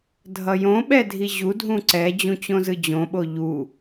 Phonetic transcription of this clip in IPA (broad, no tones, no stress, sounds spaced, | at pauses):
dʱ ʌ j õ ɓ ɛ dʱ i ʑ u dʱ ũ ǀ ɛ d͡ʑ ũ t͡ɕ õ z ɯ d͡ʑ õ ɓ o ʎ u